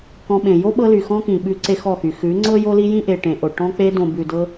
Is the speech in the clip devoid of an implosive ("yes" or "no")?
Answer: no